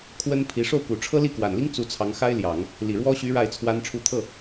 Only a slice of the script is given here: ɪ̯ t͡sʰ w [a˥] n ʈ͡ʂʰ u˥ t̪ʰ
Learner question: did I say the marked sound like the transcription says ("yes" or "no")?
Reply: yes